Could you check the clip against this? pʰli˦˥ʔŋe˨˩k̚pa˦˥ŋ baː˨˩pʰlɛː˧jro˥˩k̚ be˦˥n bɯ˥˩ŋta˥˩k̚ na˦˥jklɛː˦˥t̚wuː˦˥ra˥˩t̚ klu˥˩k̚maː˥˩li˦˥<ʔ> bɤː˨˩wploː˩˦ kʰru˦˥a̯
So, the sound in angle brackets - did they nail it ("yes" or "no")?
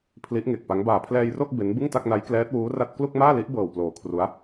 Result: yes